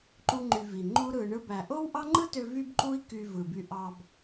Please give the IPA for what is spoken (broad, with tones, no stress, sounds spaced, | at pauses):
ǃ u˦ ŋ͡ǃ y˧ v i˨ ŋ͡ǃ u˦ ɾ ɯ˧ ɳ ɯ˦ b æ˧ ʔ o˦ w ʔ ɑ˦ ŋ͡ǃ ɯ˦ t ø˧ v y˦ b ǃ u˦ i̯ k y˧ v ɯ˨ b y˧ ʔ ɑ˧ b